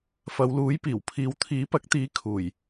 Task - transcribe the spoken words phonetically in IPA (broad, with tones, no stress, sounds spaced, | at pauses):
f ɐ˨˧ w l uː˨˥ j p iː˨˩ w pʰ iː˨˧ w t̪ʰ iː˨˥ p ɐ˨˥ k̚ t̪ iː˨˥ kʰ uː˨˩ j